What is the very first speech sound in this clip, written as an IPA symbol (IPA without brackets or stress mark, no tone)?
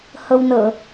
h